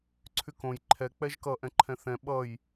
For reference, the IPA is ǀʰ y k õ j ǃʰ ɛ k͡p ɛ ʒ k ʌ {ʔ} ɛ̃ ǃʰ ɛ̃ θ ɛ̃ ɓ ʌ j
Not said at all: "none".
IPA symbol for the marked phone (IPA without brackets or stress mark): ʔ